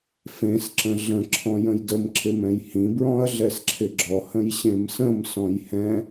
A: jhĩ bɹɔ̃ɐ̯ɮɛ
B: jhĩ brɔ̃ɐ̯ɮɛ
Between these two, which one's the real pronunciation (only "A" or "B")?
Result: A